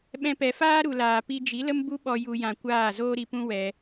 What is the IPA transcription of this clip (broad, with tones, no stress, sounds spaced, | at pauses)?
ɓ ɛ̃˧ p ɛ˨ f aː˦ ɾ u˨ l aː˨ p i˧ d͡ʒ i˨˦ l ə˦ m b u˦ ɓ ɔ˧ j u˧ j ã˧ kʷ aː˦˨ z oː˦ ɾ i˧ p ũ˦ w ɛ˧